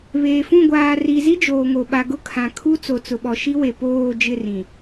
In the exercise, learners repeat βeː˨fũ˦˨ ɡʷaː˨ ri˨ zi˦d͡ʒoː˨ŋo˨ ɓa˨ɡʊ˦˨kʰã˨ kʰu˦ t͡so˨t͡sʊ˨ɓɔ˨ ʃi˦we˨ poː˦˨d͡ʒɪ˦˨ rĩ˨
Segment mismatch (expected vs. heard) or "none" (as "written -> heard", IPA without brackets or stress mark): none